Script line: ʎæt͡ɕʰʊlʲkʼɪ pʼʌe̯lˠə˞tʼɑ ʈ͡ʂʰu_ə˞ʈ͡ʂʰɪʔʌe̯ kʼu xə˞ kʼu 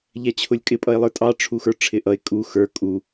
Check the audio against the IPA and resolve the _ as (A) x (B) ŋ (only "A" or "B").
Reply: A